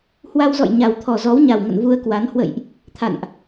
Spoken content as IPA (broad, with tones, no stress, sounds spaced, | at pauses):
h w a˧ w z ɔ̰˧˨ j ɲ a˨˩ w t̪ʰ ɔ˨˩ z ɔ˨˦ w ɲ a˨˩ w ŋ ə̰˧˨ n v u˧ ə̯ k w a˨˦ n h w ə̰˧˨ j ʔ | t̪ʰ a̰˧˨ n ʔ